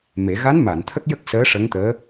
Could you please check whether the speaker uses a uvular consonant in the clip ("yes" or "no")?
no